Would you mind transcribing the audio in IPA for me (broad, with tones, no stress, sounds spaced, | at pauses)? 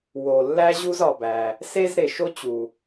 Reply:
w o˩ lː æ˥ ʑ u˥ z ɒ˩ b æ˩ | s e˥ z ɾ e˩ ʃ o˥ t͡ɕ u˩